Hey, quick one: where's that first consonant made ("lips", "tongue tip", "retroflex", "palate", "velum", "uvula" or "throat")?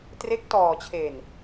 tongue tip